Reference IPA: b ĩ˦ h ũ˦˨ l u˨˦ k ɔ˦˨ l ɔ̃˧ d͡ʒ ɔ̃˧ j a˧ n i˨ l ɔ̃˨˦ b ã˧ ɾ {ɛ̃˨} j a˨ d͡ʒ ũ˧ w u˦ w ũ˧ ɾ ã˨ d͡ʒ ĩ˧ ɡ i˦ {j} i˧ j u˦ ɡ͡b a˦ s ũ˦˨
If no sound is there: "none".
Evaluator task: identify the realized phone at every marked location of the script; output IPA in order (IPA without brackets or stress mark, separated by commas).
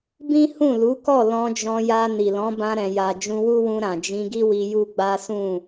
ɛ̃˨, w